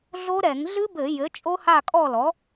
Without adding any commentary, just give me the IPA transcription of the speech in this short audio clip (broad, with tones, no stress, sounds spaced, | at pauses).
ɮ o˦˥ ɾ ɛ˧˩˧ ŋ ɮ ɨ˦˥ b ɘ˧˩˧ j ɘ˩˥ t͡ʃʼ o˦˥ h a˥˨ kʼ ɔ˥˨ l ɔ˩˥